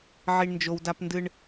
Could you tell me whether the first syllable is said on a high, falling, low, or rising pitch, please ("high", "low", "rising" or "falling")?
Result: high